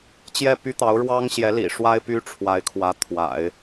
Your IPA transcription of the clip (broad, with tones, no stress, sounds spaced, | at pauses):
t͡ɕ j ɛ˥˩ p y˥ t̪ ɑ˧˥ ʊ̯ ɻ w ɑ˥ ŋ ɕ j ɛ˧˥ l ḭ˨˩ ʂ w a˥ ɪ̯ p y˥ ʈ͡ʂʰ w a˧˥ ɪ̯ kʰ w ä˧˥ t̪ʰ w a̰˨˩˦ ɪ̯